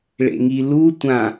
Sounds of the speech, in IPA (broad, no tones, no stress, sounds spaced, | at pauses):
ɭ ḛ ŋ i l u tʷ ã